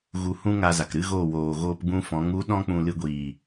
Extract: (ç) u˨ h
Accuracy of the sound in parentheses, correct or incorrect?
incorrect